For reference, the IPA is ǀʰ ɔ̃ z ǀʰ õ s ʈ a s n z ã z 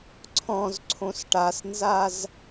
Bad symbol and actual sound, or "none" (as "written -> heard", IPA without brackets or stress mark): ã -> a